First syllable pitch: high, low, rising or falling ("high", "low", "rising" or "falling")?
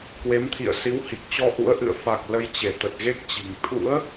rising